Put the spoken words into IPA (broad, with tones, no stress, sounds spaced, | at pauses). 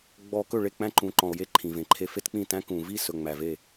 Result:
ɡ͡b ɔ˨ k ɵ˦˨ ɭ e˦˨ k͡p æ̃˦ ǃ ũ˨ ǃ ɔ̃˨ o̯ j e˦ ǃʰ ĩ˨ v ẽ˨ ǃʰ e˨ f e˦ t k͡p ĩ˦˨ t æ̃˦ k ũ˨ v i˦˨ s ɵ˨ ŋ͡m æ˨ v e˦˨